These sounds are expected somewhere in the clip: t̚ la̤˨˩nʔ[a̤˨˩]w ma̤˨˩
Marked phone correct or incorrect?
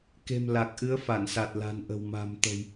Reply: incorrect